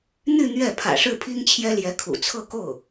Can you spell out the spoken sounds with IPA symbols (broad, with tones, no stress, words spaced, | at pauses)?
n̪y˥˧ n̪ɥɛ˥˩ pʰä̰˨˩ʂɻ̩˥˩pʰi˥ŋt͡ɕʰjɛ˥ ljɛ˧˥kʰṵ˨˩t͡sʰɤ˥˧ko˥˩ʊ̯